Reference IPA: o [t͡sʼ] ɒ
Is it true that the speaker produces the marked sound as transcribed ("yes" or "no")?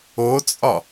yes